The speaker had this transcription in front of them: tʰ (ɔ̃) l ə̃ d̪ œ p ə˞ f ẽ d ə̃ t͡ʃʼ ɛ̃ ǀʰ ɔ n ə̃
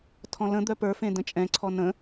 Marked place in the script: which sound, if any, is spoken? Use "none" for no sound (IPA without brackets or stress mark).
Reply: ɔ̃